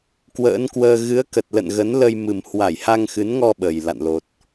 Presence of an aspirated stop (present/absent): absent